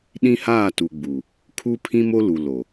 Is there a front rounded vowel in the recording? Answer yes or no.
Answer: no